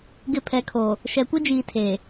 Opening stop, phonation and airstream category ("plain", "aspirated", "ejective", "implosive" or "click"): plain